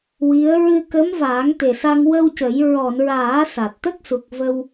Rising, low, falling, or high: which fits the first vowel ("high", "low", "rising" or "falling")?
rising